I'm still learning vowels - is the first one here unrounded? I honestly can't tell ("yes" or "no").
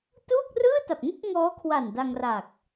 no